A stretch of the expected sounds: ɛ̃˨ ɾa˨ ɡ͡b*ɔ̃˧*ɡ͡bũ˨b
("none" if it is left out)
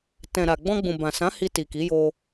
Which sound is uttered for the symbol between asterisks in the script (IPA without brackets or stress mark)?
ɔ̃˧